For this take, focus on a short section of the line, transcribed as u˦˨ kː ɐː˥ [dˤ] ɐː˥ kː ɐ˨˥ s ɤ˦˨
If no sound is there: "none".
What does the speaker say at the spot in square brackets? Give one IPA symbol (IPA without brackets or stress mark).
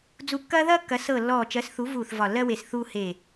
ð